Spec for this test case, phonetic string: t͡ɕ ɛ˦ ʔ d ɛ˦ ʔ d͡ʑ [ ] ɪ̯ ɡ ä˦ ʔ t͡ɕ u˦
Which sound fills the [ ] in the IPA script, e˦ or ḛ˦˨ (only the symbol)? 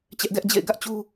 ḛ˦˨